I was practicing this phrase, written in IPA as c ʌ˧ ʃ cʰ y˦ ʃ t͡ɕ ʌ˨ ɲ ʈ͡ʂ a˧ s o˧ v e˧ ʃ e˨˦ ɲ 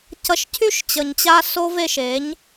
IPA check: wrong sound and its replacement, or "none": ʈ͡ʂ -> t͡ɕ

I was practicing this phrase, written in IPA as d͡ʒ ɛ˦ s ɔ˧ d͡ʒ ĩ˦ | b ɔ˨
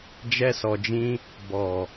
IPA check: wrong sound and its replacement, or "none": none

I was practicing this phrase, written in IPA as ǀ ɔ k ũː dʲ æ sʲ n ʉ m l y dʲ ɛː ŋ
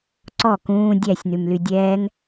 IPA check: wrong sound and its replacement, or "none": none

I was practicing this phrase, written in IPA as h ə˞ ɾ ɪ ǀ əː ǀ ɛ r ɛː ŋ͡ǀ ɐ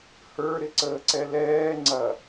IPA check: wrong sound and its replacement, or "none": r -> l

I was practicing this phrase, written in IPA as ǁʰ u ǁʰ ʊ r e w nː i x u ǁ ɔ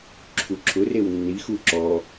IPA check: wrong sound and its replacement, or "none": none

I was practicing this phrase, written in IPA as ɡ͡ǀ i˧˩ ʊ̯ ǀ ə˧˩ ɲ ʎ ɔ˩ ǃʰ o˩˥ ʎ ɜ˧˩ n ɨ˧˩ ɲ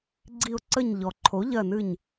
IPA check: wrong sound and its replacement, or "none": none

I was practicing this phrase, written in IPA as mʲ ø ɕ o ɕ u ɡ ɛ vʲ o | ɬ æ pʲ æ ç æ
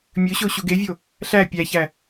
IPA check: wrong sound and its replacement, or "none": ɛ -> e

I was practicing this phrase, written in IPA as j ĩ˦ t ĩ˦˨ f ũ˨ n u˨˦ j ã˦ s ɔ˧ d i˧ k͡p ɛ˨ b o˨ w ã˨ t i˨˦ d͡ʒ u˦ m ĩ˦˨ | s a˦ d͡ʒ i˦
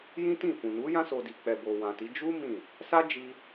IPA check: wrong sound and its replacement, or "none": ɔ˧ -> o˧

